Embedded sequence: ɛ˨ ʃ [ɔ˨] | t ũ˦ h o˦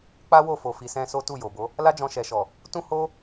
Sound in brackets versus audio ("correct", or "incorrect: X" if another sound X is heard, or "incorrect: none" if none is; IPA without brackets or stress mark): correct